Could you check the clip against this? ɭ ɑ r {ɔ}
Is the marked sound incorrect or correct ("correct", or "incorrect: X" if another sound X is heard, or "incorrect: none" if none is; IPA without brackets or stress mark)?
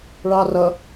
incorrect: ʌ